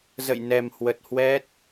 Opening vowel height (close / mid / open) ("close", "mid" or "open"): mid